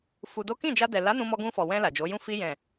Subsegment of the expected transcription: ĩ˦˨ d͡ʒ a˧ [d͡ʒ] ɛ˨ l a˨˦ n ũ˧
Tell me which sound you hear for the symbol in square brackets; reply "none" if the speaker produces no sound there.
d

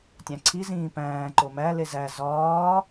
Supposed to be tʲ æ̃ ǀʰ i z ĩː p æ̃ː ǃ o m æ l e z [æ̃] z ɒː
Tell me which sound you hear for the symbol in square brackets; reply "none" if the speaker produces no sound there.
æ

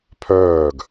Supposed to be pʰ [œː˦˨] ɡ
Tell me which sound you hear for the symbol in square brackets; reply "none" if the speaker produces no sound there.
œː˦˨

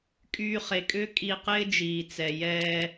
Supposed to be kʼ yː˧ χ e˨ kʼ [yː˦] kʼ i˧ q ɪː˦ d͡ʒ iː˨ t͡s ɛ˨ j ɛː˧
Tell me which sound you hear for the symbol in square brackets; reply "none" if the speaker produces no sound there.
ʏː˦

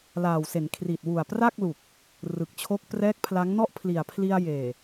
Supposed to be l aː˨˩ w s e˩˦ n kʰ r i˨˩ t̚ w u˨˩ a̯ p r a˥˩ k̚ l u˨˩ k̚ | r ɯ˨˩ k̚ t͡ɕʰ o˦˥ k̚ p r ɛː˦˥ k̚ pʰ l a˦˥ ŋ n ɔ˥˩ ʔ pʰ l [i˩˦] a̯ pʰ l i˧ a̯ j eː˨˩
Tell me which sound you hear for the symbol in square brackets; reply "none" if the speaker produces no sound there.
i˨˩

